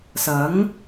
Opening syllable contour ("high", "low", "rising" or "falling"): rising